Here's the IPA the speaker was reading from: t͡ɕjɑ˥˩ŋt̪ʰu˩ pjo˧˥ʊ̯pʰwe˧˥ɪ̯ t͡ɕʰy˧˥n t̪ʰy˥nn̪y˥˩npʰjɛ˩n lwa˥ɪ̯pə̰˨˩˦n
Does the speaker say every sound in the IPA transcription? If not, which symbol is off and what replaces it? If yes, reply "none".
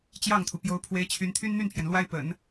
none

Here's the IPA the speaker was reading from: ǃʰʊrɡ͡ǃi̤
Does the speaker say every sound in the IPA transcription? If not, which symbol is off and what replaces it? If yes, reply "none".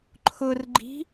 none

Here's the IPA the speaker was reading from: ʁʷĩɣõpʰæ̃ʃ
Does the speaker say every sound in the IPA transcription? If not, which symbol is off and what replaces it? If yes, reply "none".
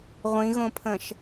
æ̃ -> ə̃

